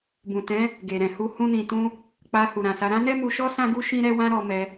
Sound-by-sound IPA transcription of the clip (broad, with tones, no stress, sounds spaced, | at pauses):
b ũ˨ t ɛ̃˨˦ | ɡ e˨ ɾ ɛ̃˨ h u˧ h ũ˧ n ĩ˨ t ũ˧ | k͡p a˧ h u˨ ɾ ã˨ s a˨˦ ɾ ã˦ n ɛ˦ m u˧ ʃ ɔ˦ s ã˦ ɡ u˦ ʃ ĩ˦ ɾ ɛ˦ w ã˦ ɾ ɔ˧ m ɛ˧